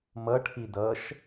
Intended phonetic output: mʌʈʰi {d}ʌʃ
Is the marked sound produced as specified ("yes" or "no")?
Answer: yes